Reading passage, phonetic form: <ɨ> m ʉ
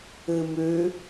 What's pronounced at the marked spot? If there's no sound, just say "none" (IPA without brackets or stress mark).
ɨ